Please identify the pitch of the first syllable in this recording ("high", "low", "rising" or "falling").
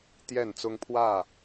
falling